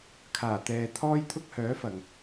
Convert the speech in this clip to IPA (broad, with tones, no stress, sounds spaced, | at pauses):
kʰ aː˨˩ t̪ ɛː˨ t̪ʰ ɔː˥ j t̪ʰ ʊ˥ k̚ h œː˨˥ f ɐ˨˩ ŋ